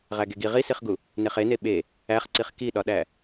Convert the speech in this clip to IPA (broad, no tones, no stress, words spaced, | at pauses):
ʁæɡeɡi ʁisiχɡu | neχene ɓe | æχǀiχ kiɗɒɗæ